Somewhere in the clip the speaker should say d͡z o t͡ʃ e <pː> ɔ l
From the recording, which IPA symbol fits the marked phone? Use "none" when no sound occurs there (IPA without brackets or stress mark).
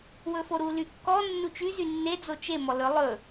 m